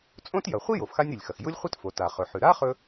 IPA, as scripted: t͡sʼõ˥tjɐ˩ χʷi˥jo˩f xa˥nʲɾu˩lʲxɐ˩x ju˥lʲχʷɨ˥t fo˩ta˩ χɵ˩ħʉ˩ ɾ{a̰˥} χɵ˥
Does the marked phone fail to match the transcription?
yes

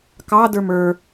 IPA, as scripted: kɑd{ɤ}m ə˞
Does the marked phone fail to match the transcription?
yes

